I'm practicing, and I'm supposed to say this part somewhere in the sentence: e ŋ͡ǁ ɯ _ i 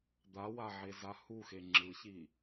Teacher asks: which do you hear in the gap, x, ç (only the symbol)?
ç